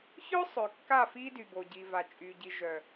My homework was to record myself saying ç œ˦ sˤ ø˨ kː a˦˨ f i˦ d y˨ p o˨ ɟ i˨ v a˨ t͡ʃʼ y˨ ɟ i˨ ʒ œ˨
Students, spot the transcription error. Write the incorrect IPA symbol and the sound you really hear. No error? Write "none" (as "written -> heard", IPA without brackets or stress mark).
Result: p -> b